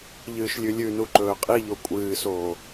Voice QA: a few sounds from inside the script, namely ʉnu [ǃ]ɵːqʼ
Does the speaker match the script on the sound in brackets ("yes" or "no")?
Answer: yes